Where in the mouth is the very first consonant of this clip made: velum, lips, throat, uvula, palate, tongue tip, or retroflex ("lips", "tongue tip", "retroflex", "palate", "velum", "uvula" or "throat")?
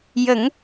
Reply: palate